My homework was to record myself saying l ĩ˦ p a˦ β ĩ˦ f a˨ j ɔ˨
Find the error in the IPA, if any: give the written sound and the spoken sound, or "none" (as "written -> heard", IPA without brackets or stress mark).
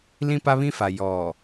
none